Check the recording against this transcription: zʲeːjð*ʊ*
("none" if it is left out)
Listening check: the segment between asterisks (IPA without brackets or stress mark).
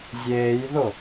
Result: ʊ